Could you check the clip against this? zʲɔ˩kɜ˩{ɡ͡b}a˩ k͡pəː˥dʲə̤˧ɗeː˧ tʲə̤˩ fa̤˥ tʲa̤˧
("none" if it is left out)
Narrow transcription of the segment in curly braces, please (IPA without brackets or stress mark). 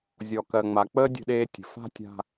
ŋ͡m